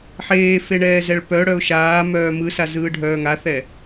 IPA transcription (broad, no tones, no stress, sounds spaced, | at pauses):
ħ eː f e ɳ ɛː z ɛ ɭ p œ ɽ œ ʊ̯ ʃ aː m œː m ɯ s a z ɯː ɖʱ œː ŋ a θ ɛ